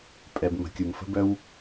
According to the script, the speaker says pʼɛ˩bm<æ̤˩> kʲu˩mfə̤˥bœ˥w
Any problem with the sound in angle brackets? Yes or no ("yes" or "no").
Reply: yes